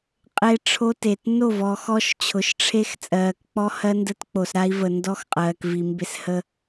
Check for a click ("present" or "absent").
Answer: absent